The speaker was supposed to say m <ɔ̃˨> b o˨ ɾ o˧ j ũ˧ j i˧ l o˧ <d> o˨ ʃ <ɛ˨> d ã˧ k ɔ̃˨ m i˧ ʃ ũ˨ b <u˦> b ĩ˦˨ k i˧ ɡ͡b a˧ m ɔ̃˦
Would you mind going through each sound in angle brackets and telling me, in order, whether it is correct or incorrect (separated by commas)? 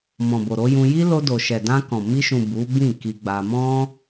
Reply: correct, correct, correct, incorrect